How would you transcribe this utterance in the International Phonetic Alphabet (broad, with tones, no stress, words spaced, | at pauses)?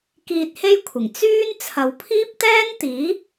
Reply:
kiː˧t̚he˥jkʷʰɪ˨˩ŋ t͡syː˥n t͡sʰɐ˨wpʰiː˥p̚t̪ɛː˥n t̪iː˨˥